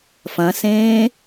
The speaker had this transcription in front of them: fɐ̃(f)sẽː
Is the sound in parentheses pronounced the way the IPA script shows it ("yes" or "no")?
no